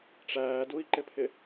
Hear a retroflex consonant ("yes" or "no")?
yes